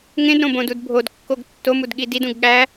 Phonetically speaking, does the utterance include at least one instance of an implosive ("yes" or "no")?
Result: yes